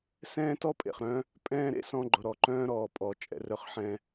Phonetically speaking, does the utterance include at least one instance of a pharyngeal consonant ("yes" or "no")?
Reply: yes